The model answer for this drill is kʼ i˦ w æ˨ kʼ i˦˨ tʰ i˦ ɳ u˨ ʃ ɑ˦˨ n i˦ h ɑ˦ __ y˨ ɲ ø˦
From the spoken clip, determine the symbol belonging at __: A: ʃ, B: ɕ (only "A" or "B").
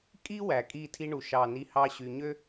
B